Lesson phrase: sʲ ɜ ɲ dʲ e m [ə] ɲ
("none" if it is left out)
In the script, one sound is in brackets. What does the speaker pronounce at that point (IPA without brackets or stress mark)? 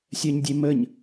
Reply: ə